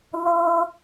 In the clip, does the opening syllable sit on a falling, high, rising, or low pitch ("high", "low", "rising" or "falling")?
high